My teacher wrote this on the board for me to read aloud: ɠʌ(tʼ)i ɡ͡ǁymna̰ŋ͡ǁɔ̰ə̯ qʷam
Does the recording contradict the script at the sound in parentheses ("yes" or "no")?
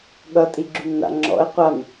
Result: no